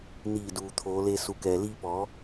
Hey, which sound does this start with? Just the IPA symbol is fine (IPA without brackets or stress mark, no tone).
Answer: n